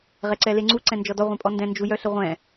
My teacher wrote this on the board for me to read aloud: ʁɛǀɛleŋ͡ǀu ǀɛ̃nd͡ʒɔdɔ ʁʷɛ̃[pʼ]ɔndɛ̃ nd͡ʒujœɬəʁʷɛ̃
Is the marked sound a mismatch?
no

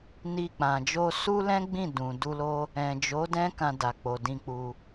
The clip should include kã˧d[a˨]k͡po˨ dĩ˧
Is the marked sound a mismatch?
no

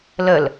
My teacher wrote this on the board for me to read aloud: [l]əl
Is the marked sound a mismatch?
no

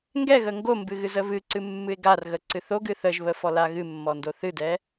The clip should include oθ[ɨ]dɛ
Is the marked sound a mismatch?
no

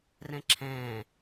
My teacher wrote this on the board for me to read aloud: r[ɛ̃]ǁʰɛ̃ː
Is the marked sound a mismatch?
no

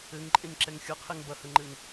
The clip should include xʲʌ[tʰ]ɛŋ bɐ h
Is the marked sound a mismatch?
yes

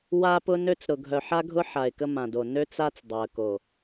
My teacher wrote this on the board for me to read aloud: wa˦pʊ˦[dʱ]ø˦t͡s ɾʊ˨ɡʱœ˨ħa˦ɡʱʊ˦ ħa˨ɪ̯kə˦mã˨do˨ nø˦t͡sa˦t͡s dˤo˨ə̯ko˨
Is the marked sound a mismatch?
yes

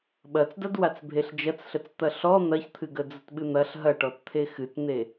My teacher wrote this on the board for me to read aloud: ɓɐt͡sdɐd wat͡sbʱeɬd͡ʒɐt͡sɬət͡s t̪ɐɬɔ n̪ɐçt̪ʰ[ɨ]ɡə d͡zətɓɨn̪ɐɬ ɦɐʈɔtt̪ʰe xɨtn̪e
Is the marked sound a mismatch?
no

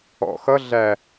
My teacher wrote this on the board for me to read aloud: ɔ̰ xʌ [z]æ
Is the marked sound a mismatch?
yes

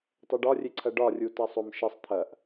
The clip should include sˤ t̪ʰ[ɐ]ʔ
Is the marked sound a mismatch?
no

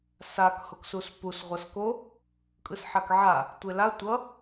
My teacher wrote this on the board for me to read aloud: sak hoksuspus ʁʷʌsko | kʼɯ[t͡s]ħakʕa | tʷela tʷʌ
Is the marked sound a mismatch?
yes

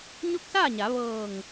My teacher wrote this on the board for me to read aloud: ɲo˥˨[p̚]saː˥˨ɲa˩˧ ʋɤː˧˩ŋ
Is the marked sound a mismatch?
yes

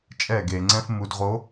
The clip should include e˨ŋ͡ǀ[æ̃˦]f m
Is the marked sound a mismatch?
yes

